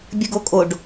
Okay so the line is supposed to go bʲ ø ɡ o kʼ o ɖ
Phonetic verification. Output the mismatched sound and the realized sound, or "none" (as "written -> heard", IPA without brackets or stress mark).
ø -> ə